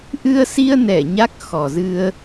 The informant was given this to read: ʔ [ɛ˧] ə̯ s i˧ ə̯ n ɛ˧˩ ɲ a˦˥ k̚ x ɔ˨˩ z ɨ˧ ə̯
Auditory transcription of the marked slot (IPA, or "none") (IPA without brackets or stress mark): ɨ˧